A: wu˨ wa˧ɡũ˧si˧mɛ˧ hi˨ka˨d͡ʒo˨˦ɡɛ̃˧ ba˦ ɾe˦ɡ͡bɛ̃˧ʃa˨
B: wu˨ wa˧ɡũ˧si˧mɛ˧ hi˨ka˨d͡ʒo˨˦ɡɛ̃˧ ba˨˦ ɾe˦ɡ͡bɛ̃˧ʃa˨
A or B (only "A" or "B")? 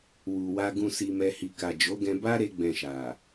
A